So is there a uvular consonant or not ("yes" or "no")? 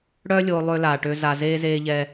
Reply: no